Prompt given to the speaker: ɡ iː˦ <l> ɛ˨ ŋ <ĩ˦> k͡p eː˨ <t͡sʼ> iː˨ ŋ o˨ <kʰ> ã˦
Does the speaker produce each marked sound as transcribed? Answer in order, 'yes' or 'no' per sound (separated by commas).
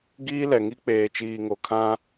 yes, no, no, yes